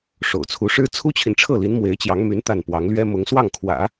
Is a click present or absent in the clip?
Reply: absent